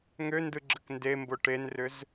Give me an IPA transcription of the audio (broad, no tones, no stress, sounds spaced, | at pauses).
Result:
ŋ ø n d ɯ ɡ͡ǁ ə k n d e m b o ʈ e n r ʏ z